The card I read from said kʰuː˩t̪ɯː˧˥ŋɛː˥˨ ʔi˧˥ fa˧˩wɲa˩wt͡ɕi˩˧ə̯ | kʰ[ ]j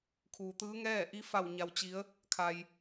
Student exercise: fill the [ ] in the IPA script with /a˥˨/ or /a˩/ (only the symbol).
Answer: a˩